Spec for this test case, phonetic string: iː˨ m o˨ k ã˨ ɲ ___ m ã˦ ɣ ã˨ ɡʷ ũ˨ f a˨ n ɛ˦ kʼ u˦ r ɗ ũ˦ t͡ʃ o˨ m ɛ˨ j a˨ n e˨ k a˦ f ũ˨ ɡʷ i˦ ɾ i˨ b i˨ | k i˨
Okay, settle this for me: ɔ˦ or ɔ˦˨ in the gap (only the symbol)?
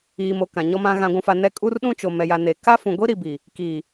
ɔ˦